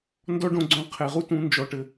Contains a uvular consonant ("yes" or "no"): yes